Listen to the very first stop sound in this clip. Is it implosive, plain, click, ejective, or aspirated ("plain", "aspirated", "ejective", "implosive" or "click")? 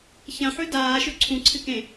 plain